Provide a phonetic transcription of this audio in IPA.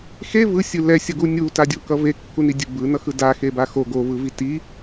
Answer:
x e v ɯ sʲ ɯ l ɛ sʲ ʌ ɡ u nʲ u t a dʲ o k ʌ v e kː u n i dʲ ɯ b ɯ n ʌ x ɯ d a x e b a x o ɡ o v ɯ v i t i

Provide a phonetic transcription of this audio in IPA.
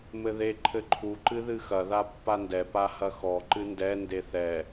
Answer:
m ɘ ð e ǃʰ ɘ ǃʰ u ǃ ɨ ð ɨ x ɐ ð a pː a n d ɛ p a h ɐ x ɔ ǃ ɨ n d ɛ n d e θ ɛ

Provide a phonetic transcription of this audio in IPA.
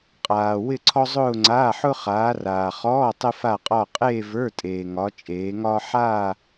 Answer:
qʼ aː˨ w ɪ˥˧ ǀʰ ɔ˥ zˤ ʊː˥˧ ŋ͡ǀ aː˧˥˧ ħ ʊ˥ χ aː˨˦ r aː˨ χ ɔː˧˥˧ tˤ ɪ˥ f a˥˧ qʼ ɒ˥˧ qʼ eː˥˧ v ə˞˧˥˧ tʼ eː˨ ŋ ɒ˨˦ t͡ʃʼ eː˨˦ ŋ ɒː˥ ħ aː˥˧

